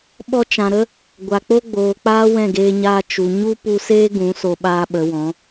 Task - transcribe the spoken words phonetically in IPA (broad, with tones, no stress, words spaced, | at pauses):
ɓɔ˧t͡ʃã˨ɾə˦ | ɡʷa˨k͡po˦ɡ͡boː˨k͡paː˦ wɛ̃˦˨ɡeː˧ɲaː˧ t͡ʃu˨ ɲu˦ pu˧seː˦ ɡũ˨˦ so˧ɓaː˦ɓə˨˦wɔ̃˨˦